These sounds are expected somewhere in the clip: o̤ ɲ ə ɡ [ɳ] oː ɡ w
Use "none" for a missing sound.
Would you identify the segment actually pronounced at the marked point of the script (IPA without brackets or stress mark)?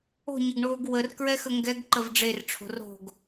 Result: ɳ